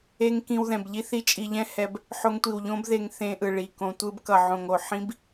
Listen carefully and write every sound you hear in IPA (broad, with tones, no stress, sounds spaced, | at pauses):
e˦ ŋ k ĩ˧ w ð ɛ̃˨ b ʎ i˦ θ i˦ t͡ʃʼ i˧ ʎ ɛ̃˦ h ɛ˧ b | ħ o˧ ŋ tʷ i˨ w ʎ õ˦ b ð e˧ ŋ θ ẽ˧ ʔ ɯ˨ ɭ i˨ k õ˧ tʷ ɯ˧ b k ʌ˨ ʕ õ˨ ŋ o˨ ħ ĩ˦ b